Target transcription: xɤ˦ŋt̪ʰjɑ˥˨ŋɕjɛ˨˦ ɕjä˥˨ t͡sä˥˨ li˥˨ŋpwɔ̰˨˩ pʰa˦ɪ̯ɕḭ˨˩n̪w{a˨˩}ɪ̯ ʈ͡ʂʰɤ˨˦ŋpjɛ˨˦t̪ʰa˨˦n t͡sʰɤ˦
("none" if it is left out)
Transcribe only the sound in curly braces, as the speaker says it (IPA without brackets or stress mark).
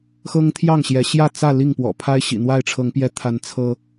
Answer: a˥˨